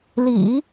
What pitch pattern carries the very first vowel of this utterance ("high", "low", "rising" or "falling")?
low